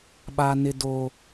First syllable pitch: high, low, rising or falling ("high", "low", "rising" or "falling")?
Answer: high